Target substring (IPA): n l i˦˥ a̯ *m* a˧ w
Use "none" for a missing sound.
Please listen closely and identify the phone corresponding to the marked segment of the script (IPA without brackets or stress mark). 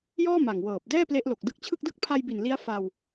f